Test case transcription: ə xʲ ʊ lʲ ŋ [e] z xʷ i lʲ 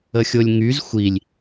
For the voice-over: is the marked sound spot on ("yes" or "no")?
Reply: no